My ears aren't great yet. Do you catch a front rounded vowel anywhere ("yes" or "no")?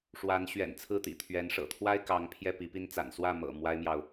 no